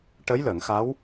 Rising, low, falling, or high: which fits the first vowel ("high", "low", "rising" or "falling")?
rising